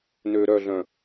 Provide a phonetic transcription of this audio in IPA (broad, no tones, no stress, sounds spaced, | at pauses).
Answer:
n ø ɾ œ ɮ œ̃